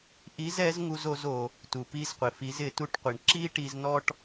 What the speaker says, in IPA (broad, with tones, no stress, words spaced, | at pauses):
ʔi˧˥zɛ˧˥z ŋu˥zo˧˥z o˩ | tu˩ pi˧zqʷɪ˩fi˩˧z ɪ˩˧tu˧˥ʈqʷi˩ɳ ǁi˥ ʈi˧znɔ˥ʈ